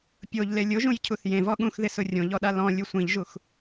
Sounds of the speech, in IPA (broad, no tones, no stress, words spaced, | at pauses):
pʲoʎle lʲʊʒũjcʰuθ jẽvɔ ɠũxðɪsʊ rʲõʎɔɗa lɔ̃lʲu sʷĩʎʒux